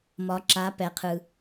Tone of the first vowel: rising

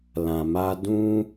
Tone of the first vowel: low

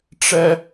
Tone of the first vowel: high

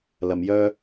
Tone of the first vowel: low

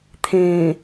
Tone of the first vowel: low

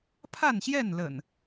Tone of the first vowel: falling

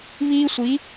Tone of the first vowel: high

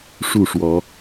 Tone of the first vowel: falling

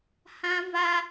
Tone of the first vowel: high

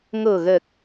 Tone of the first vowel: low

